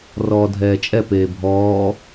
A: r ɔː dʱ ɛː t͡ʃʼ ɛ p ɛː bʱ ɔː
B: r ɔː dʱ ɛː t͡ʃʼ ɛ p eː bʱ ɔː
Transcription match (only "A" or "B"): B